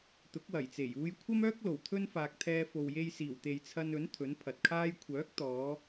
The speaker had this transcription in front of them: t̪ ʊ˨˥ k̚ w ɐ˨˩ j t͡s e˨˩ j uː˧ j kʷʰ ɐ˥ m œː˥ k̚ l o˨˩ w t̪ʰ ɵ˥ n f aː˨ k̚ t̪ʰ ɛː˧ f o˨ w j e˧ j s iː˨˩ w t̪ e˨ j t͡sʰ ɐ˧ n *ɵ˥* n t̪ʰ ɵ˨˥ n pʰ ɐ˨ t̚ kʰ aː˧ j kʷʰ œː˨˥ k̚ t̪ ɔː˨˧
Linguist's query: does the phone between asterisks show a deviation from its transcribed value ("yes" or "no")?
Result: yes